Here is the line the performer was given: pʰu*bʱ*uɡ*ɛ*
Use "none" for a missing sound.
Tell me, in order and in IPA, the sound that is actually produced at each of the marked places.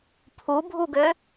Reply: bʱ, ø

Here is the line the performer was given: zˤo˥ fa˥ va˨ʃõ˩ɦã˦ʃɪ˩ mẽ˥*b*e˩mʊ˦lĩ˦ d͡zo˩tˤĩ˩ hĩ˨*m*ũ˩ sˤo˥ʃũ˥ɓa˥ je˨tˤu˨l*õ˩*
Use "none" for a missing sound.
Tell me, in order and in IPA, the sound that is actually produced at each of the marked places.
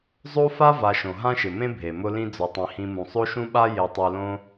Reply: bʱ, m, õ˦

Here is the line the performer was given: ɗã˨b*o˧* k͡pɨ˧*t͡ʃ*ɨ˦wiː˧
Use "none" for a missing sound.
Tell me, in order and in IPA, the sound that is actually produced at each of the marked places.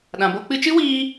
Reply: o˧, t͡ʃ

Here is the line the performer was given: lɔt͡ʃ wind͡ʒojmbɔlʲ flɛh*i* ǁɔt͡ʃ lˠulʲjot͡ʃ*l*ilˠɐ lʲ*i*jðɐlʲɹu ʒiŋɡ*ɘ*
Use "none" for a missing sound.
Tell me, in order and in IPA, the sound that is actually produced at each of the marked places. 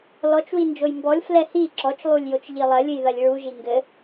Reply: i, ʎ, ɨ, ɘ

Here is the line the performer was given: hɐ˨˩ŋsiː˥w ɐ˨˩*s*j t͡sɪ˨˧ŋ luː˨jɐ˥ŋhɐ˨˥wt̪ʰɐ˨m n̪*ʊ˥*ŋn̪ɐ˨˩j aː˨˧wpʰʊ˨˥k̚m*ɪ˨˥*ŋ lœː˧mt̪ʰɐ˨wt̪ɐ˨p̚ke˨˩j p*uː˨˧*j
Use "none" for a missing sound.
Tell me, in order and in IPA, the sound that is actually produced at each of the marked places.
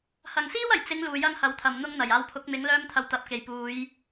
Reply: none, ʊ˥, ɪ˨˥, uː˨˧

